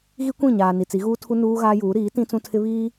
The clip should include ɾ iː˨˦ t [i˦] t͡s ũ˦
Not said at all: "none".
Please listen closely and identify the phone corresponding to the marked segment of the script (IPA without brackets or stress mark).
ĩ˦